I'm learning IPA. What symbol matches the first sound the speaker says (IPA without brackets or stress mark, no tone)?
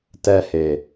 t